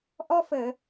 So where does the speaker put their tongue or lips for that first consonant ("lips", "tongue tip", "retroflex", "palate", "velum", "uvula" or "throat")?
throat